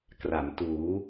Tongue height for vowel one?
low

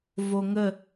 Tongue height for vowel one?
mid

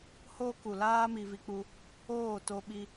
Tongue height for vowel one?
mid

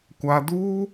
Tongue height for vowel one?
low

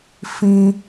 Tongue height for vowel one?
high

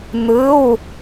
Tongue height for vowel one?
high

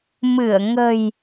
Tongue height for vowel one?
high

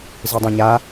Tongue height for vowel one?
high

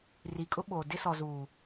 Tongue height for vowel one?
high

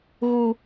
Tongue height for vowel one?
high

